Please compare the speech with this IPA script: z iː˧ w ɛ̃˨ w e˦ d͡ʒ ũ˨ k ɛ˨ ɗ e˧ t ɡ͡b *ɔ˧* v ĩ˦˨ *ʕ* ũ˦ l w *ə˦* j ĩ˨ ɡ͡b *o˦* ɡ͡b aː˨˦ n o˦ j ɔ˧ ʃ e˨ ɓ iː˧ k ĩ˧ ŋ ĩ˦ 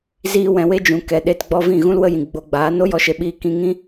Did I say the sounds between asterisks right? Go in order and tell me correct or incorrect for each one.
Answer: correct, incorrect: ɣ, correct, incorrect: o˧

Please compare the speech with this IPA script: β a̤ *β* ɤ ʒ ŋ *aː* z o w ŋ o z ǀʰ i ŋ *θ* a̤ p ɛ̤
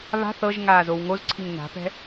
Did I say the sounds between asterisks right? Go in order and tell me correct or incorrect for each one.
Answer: incorrect: θ, correct, incorrect: n

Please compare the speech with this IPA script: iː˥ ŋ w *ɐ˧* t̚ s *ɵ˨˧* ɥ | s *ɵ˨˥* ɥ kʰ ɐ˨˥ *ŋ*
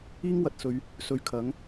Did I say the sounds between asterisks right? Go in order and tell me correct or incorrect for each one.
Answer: incorrect: ɐ˨, correct, incorrect: ɵ˨, correct

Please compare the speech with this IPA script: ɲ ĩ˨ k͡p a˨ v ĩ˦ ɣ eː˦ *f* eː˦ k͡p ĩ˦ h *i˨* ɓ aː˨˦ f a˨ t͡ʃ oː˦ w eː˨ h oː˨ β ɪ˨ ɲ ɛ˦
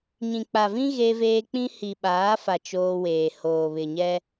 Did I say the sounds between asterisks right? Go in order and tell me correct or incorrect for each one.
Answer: incorrect: v, correct

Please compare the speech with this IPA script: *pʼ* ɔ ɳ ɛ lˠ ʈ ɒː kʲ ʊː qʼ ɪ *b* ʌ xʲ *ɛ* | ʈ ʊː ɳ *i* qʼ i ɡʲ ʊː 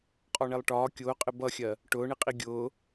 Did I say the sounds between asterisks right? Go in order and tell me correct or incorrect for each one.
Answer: incorrect: qʼ, correct, incorrect: ɜ, correct

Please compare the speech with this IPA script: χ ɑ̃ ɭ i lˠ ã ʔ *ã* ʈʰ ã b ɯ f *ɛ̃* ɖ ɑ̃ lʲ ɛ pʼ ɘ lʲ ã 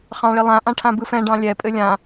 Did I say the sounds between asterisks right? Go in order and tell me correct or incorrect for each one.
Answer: correct, correct

